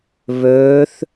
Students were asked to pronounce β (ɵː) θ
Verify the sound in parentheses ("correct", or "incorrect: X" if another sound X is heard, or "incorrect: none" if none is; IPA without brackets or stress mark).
correct